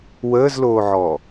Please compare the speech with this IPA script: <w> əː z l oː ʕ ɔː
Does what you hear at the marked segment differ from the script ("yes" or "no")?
no